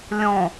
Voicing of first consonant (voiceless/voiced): voiced